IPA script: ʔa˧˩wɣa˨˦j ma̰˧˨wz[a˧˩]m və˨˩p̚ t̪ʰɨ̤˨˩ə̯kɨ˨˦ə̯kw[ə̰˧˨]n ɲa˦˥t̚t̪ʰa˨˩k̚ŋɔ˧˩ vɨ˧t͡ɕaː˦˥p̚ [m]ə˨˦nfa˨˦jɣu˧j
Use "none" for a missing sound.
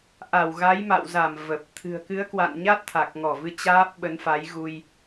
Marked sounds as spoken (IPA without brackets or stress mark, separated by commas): a˧˩, a̰˧˨, ɓ